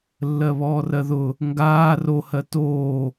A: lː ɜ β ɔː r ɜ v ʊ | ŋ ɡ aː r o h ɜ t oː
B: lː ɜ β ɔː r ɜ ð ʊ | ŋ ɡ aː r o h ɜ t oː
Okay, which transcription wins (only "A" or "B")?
B